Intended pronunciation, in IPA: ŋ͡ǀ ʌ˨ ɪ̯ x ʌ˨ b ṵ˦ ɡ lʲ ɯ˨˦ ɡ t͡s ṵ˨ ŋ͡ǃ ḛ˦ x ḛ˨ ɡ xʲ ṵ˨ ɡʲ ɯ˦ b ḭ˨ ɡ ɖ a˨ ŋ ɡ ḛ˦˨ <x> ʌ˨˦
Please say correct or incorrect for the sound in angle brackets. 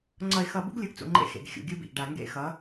correct